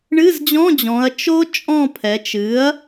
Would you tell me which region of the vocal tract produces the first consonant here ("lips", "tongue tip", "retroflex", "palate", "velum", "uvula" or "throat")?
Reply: retroflex